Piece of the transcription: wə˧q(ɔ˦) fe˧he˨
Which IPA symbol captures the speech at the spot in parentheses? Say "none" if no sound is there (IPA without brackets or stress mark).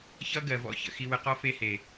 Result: ɔ˦